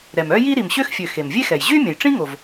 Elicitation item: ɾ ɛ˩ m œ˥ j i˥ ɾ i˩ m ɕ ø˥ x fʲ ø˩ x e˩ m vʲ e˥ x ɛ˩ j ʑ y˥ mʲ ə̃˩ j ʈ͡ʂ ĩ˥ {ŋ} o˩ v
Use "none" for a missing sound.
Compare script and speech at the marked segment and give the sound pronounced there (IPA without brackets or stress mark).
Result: ŋ